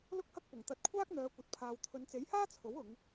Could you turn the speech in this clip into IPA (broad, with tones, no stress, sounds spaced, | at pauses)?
l ʊ˥ k̚ h ɐ˥ k̚ p ʊ˨˩ ŋ t̪ ɐ˧ t̚ kʷʰ aː˥ k̚ n̪ œː˨˧ kʷ ɐ˨ t̚ pʰ aː˨ w t̪ʰ ɵ˨˧ n t͡s e˨˥ j h aː˥ t͡sʰ o˨˥ w ʊ˨˧ ŋ